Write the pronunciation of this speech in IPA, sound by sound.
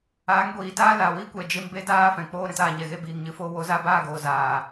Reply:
aː˨˦ ŋ ɡʷ iː˨ t aː˦ l a˨ w i˦ kʷ ɛ˨ d͡ʒ e˧ m b e˦ d aː˦ f ɛ̃˨ k͡p oː˧ ɾ ɛ̃˧ t aː˨ ɲ ɛ˨ ɣ e˦ b iː˨ ŋ ɲ ɨ˨ f oː˧ w o˨˦ z a˧ b aː˦˨ ɡ oː˨ z aː˨

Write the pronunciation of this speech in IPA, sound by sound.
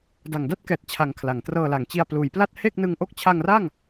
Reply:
d a˨˩ ŋ d a˥˩ t̚ k ɛː˨˩ t̚ t͡ɕʰ a˩˦ ŋ kʰ l a˩˦ ŋ t r ɤː˧ l a˩˦ ŋ t͡ɕ i˧ a̯ p l uː˩˦ j p l a˥˩ t̚ h e˥˩ k̚ n ɯ˧ ŋ ʔ o˥˩ k̚ t͡ɕʰ a˧ ŋ r a˥˩ ŋ

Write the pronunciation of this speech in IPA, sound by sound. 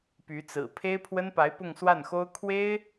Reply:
p y˧˥ t͡s ɹ̩˨˩ pʰ e˥ ɪ̯ pʰ w ə˥ n p a˧˥ ɪ̯ p ʊ˥˧ ŋ s w a˥˩ n x o˥ ʊ̯ kʰ w e˥ ɪ̯

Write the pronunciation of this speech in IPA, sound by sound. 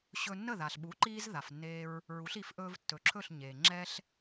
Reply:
ɕ ɵ˧ nː ə˥˩ ð a˩ ɬ ɓ u˩˥ ǃ iː˧ z ð a˩ f nː eː˧ ɹ | ɹ u˩˥ ɬ i˩˥ f ʔ ɵː˧ v tː ɵ˩˥ ǁʰ ɵ˥˩ ɬ ɲ eː˩ ŋ͡ǁ ɛ˥ ɬ

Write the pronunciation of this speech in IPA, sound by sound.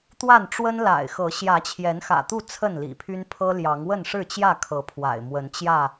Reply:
t̪ w a˥˨ n ʈ͡ʂ w ə˦ n l a̰˨˩ ɪ̯ x ɤ˨˦ ɕ j ä˨˦ t͡ɕʰ j ɛ˨˦ n x ä̰˨˩ t̪ u˥˨ t͡sʰ ə˥˨ n l ḭ˨˩ pʰ y˦ n pʰ ɤ˦ l j ɑ˨˦ ŋ w ə˥˨ n ʂ ɻ̩˥˨ t͡ɕ j ä˥˨ kʰ ɤ˨˦ pʰ w a̰˨˩ ɪ̯ m w ə˨˦ n t͡ɕ j ä˥˨

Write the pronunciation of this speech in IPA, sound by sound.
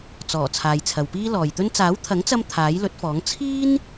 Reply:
t͡s ɔː˨˩ t͡sʰ aː˨ j t͡sʰ ɐ˨ w p iː˥ l ɔː˨ j t̪ ɵ˥ n t͡s aː˨˥ w t̪ʰ ɐ˨˥ ŋ t͡s ɐ˧ m t̪ʰ aː˨˥ j l ɵ˨˥ t̚ f ɔː˨˥ ŋ t͡sʰ iː˥ n

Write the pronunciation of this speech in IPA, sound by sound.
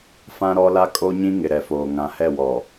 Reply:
f ã˦ ɾ ɔ˦ l a˦ kʼ o˦ ɲ ĩ˦ ŋ ɪ˨ ɾ ɛ˨ f oː˨ ŋ ã˨ h ɛ˦˨ w ɔ˨

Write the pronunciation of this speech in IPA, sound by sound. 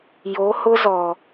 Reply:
j o˨˦ h ʊ˦ z ɔ˨

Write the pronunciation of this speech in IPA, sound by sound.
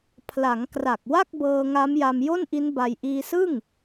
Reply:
pʰ l a˩˦ ŋ k r a˨˩ k̚ w a˥˩ k̚ b ɤː˧ ŋ a˦˥ m j a˧ m j o˥˩ n ʔ i˦˥ n b a˧ j ʔ iː˧ s ɯ˥˩ ŋ

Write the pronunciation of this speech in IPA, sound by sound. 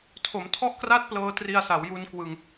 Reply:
tʰ o˩˦ m tʰ ɔ˥˩ ʔ k r a˥˩ t̚ p l ɤː˧ t r i˧ a̯ s a˩˦ w j u˧ n k w ɯ˧ ŋ

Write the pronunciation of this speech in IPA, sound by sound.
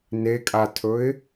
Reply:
n e kʼ a tʰ ɵ ɪ̯

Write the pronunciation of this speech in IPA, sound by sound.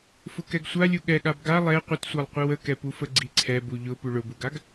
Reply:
f ʊ k ɛ ɡ sʷ a lʲ u ɠ ɛ ɠ a b ɡ a lˠ ɛ qʷ ə t sʷ a lˠ qʷ i w ə k ɛ p u f ə ɡ͡ǀ i ǀʰ ɛ b u ʎ ʊ p u ɭ ʊ b u ɡ a ɡ

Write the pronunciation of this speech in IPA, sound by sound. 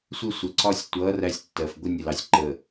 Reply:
sʷ ɪ˦ sʷ ə˨ ǀ ɒ˦ sʲ tʷ ʌ˨˦ r æ˦ sʲ tː ɜ˨ f ɡʷ ə˦ nʲ ə˨ l ɑ˨ sʲ ǃ ə˨

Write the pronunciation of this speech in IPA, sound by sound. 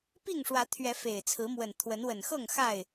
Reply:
p i˥˨ ŋ ʂ w ä˨˦ t̪ʰ ɥ ɛ˨˦ f e˨˩ ɪ̯ t͡sʰ ɹ̩˨˦ m w ə˨˩ n t̪ʰ w ə˨˦ n w ə˨˩ n x ɤ˥˨ ŋ x a˥˨ ɪ̯

